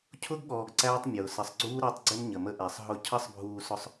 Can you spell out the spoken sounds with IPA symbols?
cʰʊ˦ɡɠɔː˨ɡ ǀæː˦tˤ mʲʊː˨ sə˨sˤɡ͡ǀuː˦ ɾəː˦tˤɡ͡ǀɪ˦m ɲə˨mə˦ʔæ˨sˤ ɦʊ˦ cʰʌ˦sˤbʱuː˨sʊ˨sˤ

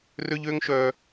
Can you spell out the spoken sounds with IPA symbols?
rø˧ʎø˧ŋʃœ˨

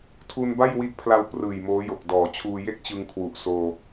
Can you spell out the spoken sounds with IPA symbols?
tʰu˧nba˥˩jwi˦˥ʔpʰla˧w prɯː˨˩jmoː˦˥jo˨˩k̚ dɔː˩˦t͡ɕʰuː˧ je˥˩k̚t͡ɕɯ˧ŋ kʰwu˨˩ʔsoː˧

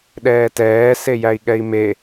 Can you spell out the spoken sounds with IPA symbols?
ɗɛːtɛː sejæi̯ɠɛi̯me

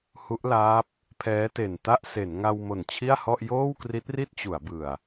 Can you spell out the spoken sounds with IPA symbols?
hu˦˥ʔlaː˦˥p̚ | pʰɛː˦˥te˨˩nta˥˩ʔ se˩˦nŋa˧w mo˨˩nt͡ɕʰi˥˩a̯hɔ˥˩ʔ joː˥˩wkri˦˥t̚ri˥˩t̚t͡ɕu˩˦a̯ bɯ˨˩a̯

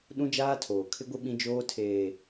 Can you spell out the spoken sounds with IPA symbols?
ɗũ˦d͡ʒaː˦tʰoː˨ kʰɪ˦ɡʷɪ˦ ɓĩ˦d͡ʒoː˦tʰeː˨

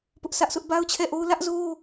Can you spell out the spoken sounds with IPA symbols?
pʊ˦ʔsä˦ʔsʰʊ˦ʔ ba˦ʊ̯t͡ɕʰɛ˦˨ʔo˦ʊ̯ lä˦ʔzo˦

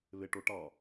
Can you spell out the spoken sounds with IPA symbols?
βeʈo ʈɑ

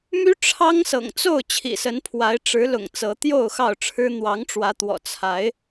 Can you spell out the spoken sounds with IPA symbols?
my˦ʈ͡ʂʰɑ˦ŋsɤ̰˨˩ŋ t͡so˥˨ʊ̯ t͡ɕʰḭ˨˩sə˨˦npʰwa˨˦ɪ̯ ʈ͡ʂɻ̩˨˦lʊ̰˨˩ŋ t͡sɤ˨˦t̪jo˥˨ʊ̯xɑ˥˨ʊ̯ʈ͡ʂʰɻ̩˦ n̪wɑ˨˦ŋʈ͡ʂwä˨˦t̪wɔ̰˨˩ t͡sʰa˨˦ɪ̯

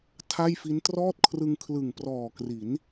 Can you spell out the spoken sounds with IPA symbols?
tʰa˥˩jfi˦˥n trɔː˥˩t̚kʰrɯ˧ŋ kʰlɯ˨˩ŋprɔː˨˩ kri˩˦n

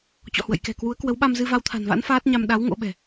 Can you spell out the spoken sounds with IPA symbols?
t͡ɕɔ̰˧˨hwə̰˧˨jkɛ̤˨˩kwu˨˦ə̯ kwə˨˦wɓa˧m zɨ˧va˧wt̪ʰa̤˨˩nva̰˧˥n faː˦˥t̚ɲa˧m ɗa˨˦w ŋo̰˧˥ɓɛ̤˨˩

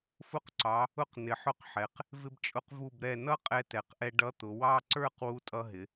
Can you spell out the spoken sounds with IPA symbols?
fʊ˧qǀɑ˩˧ | ʊ˧q nɪ˩˧ħʊ˧˥qħɛ˩˧q | vɪ˧bt͡ʃʼʊ˧q vu˧˩bɾɛ˧˩ nʌ˥˧ qʼɛ˧tɛ˩˧qʔɛ˧ ɖʌ˧˥t̪ʊ˩˧wɑ˥˧ ǀə˞˥˧q wu˧tʼʌ˧ɦɪ˩˧

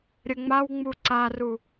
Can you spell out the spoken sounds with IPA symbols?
ɾʲəŋ͡mawŋ͡mu ǀaru

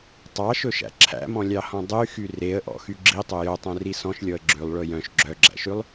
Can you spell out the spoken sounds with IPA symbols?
tˤɑʃɵʃæ̰ ǁʰæ̰mɔ̃lʲɑhɔ̃ dˤyxy reə̯ʔɔ̰xy ɡ͡ǁitˤɵ jœtˤœ̃ri sɔ̃ʃlʲɔə̯ ɡ͡ǁʉlˠɭɵ jœ̃ʃ ɡ͡ǁœɡ͡ǁæ̰ʃʉlˠ

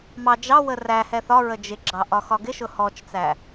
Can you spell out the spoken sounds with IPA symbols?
mɑ d͡ʒɑ wəræhɛ θɒɹə d͡ʒɪɡ͡ǁɑ ʔɒxɒɡɪʃʊ hɔt͡ʃt͡sæ

